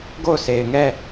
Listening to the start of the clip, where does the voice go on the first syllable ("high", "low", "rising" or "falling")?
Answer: falling